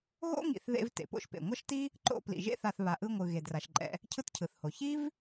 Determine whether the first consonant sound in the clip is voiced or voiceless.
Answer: voiced